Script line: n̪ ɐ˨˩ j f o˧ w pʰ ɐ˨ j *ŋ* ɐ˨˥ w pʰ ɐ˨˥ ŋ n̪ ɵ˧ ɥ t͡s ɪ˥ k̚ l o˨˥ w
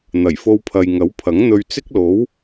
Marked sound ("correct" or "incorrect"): correct